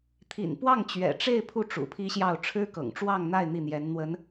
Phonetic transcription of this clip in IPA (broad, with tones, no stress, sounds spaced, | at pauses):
t̪ʰ ḭ˨˩ n p w ɑ˥˩ ŋ t͡ɕ ɥ ɛ̰˨˩ ʈ͡ʂ e˥˧ ɪ̯ pʰ u˥˩ ʈ͡ʂ ṵ˨˩ pʰ i˥ ɕ j ɑ˥˩ ʊ̯ ʈ͡ʂʰ ɻ̩˥ k ɤ̰˨˩ ŋ ʈ͡ʂ w ɑ˥˧ ŋ n̪ a˥˧ ɪ̯ n̪ i˥˩ n̪ j ɛ˧˥ n n̪ w ə˧˥ n